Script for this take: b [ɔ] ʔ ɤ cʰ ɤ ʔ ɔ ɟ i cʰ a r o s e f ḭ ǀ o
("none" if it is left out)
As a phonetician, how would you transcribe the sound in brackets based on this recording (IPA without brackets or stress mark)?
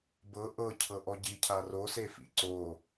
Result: ɤ